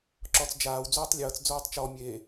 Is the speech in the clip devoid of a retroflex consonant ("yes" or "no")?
yes